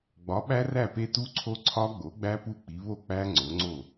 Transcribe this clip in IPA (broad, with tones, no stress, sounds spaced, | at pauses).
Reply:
ɡ͡b ɒ˩˥ ɓ æ˦˥ r æ˥˩ p e˦˥ t u˦˥ ǀʰ o˦˥ ǀʰ ɒ˦˥ ɡ͡b o˩˥ ɡ͡b æ˦˥ p u˥˩ k͡p i˩˥ β o˥˩ k͡p æ˦˥ ŋ͡ǀ o˩˥ ŋ͡ǀ o˥˩